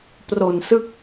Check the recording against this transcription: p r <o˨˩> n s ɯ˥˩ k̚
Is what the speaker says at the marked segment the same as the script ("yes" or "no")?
yes